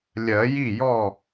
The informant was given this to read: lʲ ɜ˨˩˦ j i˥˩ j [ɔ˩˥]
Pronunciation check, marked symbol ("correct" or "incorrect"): incorrect